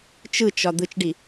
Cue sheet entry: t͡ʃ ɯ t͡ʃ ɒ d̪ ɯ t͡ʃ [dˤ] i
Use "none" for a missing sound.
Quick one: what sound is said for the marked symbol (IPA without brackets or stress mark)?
ɖ